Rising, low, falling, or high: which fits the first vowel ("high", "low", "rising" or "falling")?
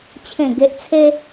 low